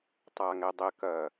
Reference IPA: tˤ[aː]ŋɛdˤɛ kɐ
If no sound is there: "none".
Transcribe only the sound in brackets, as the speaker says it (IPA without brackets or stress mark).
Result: aː